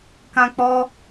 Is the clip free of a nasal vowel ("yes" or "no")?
no